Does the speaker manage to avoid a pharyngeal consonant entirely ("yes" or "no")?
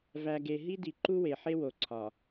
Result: no